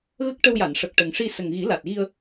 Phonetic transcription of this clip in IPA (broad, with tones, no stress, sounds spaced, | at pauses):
ɣ ə˦˥ k̚ ʈ ə˧ w j a˨˩˨ n ʂ ə˨˩ k̚ ʈ ə˨˩ ŋ ʂ i˧ s ə˨˩ ŋ ɣ i˨˩˦ l a˨˩ t̚ ɣ i˧ ə̯